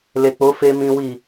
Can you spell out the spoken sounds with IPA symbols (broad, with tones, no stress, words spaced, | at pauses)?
le˨k͡po˨˦ fe˧ mĩ˦wi˦˨